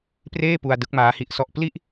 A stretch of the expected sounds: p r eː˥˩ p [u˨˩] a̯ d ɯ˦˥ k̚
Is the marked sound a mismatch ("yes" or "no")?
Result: yes